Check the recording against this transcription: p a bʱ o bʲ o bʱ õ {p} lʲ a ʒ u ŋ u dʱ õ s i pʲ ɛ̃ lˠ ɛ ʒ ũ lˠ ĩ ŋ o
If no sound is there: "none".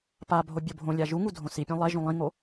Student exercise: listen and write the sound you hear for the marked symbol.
none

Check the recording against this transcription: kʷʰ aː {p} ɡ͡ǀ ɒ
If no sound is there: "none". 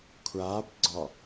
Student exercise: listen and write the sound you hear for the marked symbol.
p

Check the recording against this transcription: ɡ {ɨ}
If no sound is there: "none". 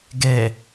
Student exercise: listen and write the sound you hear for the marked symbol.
ɛ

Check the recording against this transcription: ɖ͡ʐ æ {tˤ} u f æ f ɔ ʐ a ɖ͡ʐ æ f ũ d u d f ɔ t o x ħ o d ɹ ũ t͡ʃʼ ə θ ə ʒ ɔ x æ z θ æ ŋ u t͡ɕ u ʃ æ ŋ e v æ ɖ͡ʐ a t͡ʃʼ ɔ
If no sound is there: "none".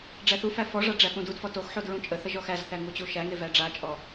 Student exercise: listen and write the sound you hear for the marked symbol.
θ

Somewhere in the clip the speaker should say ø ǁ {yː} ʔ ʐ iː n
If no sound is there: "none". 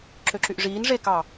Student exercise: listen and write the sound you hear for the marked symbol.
y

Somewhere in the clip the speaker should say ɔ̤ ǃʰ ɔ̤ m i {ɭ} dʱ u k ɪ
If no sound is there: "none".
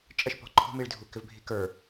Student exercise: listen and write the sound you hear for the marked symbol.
ɭ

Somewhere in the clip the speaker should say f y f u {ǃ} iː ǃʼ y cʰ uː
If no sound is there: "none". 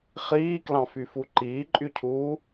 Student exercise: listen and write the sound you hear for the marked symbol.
ǃ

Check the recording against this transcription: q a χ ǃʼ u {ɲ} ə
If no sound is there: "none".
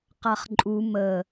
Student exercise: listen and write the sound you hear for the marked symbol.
m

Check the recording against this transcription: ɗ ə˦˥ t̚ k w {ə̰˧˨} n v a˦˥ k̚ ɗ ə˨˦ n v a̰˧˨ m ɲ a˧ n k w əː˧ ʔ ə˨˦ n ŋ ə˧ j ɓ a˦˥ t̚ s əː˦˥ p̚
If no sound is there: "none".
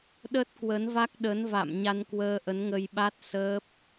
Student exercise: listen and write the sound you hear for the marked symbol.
ə˨˦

